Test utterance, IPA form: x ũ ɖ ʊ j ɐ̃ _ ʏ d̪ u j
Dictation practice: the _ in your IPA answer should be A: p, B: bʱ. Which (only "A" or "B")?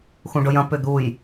A